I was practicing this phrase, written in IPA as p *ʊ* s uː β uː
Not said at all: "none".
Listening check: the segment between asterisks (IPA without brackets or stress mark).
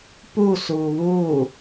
u